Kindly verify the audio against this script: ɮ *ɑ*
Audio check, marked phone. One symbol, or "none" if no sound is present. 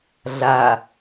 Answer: a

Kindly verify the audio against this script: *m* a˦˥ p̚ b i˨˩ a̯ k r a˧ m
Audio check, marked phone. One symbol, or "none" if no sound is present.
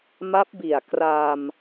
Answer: m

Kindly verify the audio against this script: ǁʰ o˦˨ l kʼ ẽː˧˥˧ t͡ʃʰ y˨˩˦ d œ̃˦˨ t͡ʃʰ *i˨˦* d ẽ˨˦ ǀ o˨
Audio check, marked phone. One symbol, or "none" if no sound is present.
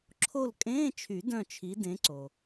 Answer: i˨˦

